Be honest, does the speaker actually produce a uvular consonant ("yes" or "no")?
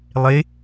no